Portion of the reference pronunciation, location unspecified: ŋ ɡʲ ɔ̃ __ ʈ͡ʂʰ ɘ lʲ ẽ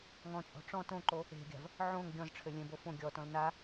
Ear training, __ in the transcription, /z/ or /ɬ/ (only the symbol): z